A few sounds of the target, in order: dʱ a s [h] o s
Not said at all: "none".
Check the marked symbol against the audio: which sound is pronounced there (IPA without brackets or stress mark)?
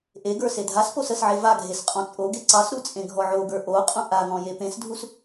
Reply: p